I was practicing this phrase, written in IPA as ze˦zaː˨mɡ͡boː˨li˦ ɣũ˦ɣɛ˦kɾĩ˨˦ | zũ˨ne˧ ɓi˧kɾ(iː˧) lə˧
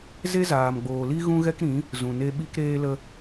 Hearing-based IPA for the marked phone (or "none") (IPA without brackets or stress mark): eː˧